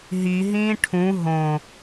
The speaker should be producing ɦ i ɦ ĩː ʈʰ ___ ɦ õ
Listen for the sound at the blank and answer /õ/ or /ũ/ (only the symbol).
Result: ũ